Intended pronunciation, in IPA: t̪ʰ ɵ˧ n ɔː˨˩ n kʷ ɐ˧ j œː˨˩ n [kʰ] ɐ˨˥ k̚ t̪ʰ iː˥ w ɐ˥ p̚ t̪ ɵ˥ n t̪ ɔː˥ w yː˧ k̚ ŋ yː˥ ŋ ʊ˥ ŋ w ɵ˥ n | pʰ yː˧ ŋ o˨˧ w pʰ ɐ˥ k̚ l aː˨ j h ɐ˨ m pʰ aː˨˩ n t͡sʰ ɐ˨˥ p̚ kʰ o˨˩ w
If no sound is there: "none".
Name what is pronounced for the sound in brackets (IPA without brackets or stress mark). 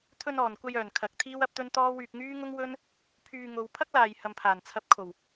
kʰ